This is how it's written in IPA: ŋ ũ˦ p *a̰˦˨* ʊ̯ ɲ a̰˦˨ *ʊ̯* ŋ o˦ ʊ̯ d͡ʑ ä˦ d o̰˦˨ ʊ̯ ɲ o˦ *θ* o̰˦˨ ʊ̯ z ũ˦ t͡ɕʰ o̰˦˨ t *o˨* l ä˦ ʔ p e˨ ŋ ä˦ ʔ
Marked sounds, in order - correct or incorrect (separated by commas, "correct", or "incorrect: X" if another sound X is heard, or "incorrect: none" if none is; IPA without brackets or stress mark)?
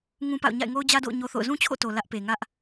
correct, incorrect: ɪ̯, correct, correct